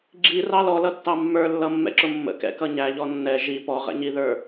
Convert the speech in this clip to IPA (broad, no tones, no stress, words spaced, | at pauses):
ɡ͡ǁirɑ lɔlʌtːɑ mːə˞lːʌmːɛ̰ǁʊ mːə̰kɛ̰kʌ ɲæʎɔ nːɛ ʒi pɔʁɛ̰ɲiðə˞